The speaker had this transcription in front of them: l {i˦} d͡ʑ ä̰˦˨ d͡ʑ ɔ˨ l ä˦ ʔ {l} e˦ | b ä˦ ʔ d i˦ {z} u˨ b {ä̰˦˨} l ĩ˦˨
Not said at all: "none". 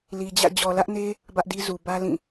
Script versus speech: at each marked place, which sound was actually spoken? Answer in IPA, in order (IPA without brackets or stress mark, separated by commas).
i˨, n, z, ä˦